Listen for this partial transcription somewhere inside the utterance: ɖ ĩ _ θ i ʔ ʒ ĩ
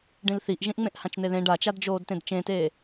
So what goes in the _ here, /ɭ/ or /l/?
l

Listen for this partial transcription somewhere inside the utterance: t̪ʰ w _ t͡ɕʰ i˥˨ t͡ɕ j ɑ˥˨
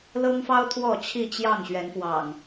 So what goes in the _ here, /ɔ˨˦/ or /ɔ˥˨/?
ɔ˥˨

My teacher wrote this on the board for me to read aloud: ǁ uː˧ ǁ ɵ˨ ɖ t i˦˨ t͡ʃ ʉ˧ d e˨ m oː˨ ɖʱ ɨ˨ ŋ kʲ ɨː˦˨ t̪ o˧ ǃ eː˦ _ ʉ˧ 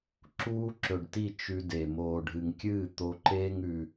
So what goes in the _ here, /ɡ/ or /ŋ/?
ŋ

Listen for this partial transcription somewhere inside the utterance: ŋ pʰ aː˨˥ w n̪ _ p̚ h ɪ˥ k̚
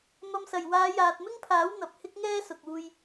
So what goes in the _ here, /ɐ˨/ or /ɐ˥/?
ɐ˨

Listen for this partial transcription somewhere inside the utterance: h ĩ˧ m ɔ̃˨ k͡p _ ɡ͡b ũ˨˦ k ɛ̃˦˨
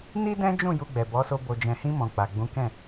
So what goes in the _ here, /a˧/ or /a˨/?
a˨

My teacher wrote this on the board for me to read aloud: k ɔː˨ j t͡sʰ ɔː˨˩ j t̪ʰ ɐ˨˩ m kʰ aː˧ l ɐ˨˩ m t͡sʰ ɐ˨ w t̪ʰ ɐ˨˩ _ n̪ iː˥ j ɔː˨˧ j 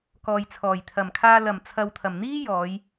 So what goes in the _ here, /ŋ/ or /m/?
m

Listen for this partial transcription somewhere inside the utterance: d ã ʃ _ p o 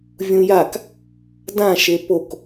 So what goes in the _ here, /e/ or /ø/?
e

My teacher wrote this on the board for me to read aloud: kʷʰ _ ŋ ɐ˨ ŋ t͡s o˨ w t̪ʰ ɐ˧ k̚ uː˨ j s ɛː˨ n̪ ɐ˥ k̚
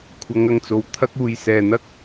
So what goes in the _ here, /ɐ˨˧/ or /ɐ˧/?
ɐ˨˧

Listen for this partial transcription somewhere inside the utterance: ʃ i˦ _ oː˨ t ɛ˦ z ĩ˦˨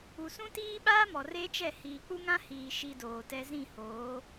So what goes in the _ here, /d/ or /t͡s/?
d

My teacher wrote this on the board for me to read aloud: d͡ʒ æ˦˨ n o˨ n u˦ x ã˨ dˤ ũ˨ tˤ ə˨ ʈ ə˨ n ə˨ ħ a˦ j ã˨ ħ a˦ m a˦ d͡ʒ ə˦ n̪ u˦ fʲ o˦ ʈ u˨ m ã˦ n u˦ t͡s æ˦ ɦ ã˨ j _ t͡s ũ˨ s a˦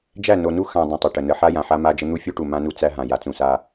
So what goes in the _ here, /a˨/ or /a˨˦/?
a˨˦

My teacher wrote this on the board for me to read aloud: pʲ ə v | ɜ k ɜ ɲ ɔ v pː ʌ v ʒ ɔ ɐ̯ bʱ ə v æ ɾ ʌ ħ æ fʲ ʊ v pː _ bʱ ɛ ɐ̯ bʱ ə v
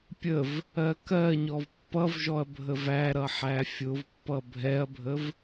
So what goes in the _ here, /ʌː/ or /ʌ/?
ʌ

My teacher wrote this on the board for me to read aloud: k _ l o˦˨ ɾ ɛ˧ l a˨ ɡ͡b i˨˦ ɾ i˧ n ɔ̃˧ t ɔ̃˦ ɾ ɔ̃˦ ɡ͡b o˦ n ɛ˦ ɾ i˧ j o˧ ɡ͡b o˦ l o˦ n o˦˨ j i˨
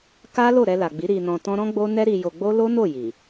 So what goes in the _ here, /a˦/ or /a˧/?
a˦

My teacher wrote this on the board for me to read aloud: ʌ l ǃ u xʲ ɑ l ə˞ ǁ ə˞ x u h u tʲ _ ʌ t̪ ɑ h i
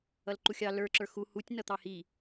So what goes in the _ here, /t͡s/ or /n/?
n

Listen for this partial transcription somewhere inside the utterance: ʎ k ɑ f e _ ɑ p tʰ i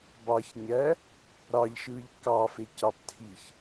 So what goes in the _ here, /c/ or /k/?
c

